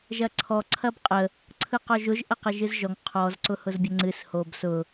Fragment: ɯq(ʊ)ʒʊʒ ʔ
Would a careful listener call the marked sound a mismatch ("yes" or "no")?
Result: yes